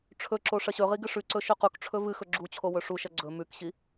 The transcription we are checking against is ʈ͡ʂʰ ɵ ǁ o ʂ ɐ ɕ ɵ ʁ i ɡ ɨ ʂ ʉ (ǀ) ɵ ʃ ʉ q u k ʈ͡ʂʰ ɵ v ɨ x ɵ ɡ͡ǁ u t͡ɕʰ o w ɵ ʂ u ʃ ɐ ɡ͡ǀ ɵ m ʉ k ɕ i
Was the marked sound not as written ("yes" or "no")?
no